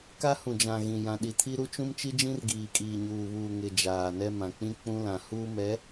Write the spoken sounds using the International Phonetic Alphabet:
k a˦ h ũ˨ d͡ʒ ã˨ ɣ ĩ˨ j ã˨ ɗ i˨ tʰ i˦ ɾ u˦ t͡ʃ ũ˦ m t͡ʃ i˦ d͡ʒ ĩ˦ r ɡ iː˨ kʼ iː˨ ɲ uː˨ β uː˨ ŋ ɪ˨ d͡ʒ aː˨ n ɛ˦ m ã˨ k͡p ĩ˦ k͡p ũ˦ l ã˨ h uː˦ m ɛ˨˦

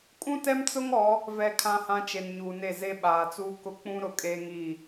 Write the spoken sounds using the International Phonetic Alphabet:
kʼ ũ˦ t ɛ˦ m t͡s ʊ˦ ŋ ɔ˨˦ | v ɛ˨ kʰ ã˨ h ã˨ t͡ʃ e˨ n ɲ uː˨ n e˦˨ z e˦ ɓ aː˨ t͡s uː˦ k ʊ˦ k͡p ũ˦ ɾ ʊ˨˦ kʼ eː˦ ŋ iː˦˨

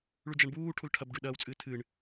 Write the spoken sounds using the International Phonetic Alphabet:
ɭ ʉ d͡ʒ a ɳ b uː ʈʰ u l ʈʰ ɐ b ɖ ʉ ɗ ɐː w t͡sʼ ɨː tʰ ɨ ɳ

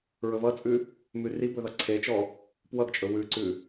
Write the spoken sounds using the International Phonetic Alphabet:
ɹ ɵ v ʌ t͡sʼ ʉ | m ʉ r i b ɵ ð ʌ ǀʰ e t͡ʃ ɔ | p w ʌ ɡ t͡ʃʼ ɵ w ʉ ǀ ʉ

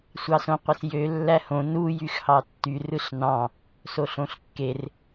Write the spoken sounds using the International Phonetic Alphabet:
sʷ ɑ s õ qʷ e s j ø lː æ h õ n u j y x h ɑ tː y r ɯ ɬ n ɑ̃ | s o ɬ õ ɬ kː e r

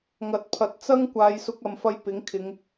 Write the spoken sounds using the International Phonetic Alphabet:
ŋ ɐ˨˥ t̚ pʰ ɐ˨ t̚ t͡s ɐ˥ ŋ kʷ aː˨˧ j s ʊ˧ k̚ ɐ˨ m f ɐ˧ j p ɪ˨˥ ŋ kʰ ɪ˨˧ ŋ

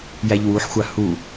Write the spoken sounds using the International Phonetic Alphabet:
j æ ʎ w u ħ xʷ a h u

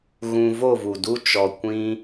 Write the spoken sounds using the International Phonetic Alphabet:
ɣ ũ˧ v o˦˨ v u˨ d u˦ t͡ʃ ɔ˧ kʷ ĩ˦

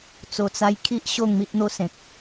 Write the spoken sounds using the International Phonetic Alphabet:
t͡s o˨˩ t͡s a˧ j kʰ i˦ ʔ ɕ o˥˧ ŋ m i˦ ʔ n̪ o˦ s ẽ˨ k̚

